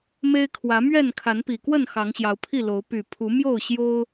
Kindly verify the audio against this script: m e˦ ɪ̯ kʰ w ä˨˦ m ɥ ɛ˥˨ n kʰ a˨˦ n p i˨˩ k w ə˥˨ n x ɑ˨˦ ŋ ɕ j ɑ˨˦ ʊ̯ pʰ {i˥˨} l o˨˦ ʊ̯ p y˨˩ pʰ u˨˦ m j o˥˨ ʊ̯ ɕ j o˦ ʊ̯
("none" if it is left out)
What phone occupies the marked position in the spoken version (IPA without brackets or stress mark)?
i˥˨